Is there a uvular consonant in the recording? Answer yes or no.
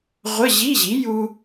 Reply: yes